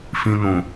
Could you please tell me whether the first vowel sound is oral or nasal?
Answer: nasal